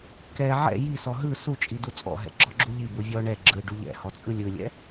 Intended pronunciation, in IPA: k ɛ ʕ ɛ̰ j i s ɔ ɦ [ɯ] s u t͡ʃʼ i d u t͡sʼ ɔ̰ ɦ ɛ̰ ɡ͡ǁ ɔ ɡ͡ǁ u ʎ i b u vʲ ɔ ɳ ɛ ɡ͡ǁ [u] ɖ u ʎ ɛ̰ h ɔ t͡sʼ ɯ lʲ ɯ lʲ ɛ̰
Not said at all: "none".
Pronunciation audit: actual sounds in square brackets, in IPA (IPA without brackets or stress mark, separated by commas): ɯ, ɯ